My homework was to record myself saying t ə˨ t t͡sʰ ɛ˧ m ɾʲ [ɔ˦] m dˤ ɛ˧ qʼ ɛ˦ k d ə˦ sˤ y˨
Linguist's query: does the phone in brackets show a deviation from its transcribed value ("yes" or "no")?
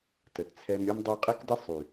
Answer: no